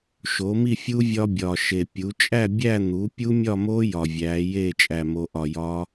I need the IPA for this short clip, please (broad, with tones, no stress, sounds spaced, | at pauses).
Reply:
ʃ o˩˥ m i˥˨ fʲ u˦˥ vʲ ɒ˦˥ bʲ ɒː˨˩ ʃ e˨˩ pʲ u˩˥ t͡ʃʼ æ˥˨ bʲ æ˥˨ n̪ u˩˥ pʲ u˦˥ mʲ ɒ˥˨ m o˦˥ j ɒ˨˩ vʲ æː˩˥ j e˥˨ t͡ʃʼ æ˥˨ m o˦˥ ʔ ɒ˥˨ j ɒː˦˥